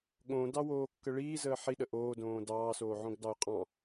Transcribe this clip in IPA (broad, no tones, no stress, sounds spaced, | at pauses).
ɠ õ d ɑ w oː kː ə ɭ iː z əː ħ i ɗ ə ʔ oː d õː d ɑː s oː ʕ õ ɡ d ɑ ʊ̯ qʼ ɑ̃